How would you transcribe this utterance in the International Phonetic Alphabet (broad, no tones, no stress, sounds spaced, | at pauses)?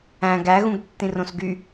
æ̃ ɡ æ ɣ ũ ɡ tː ĩ r õ s ɡ y